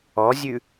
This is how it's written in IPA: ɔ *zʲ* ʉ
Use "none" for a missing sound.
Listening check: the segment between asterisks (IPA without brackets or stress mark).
zʲ